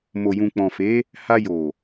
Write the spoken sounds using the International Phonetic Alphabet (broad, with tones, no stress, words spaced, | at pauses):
mo˨jũ˨ k͡pɔ̃˨fe˨˦ | ha˧jo˨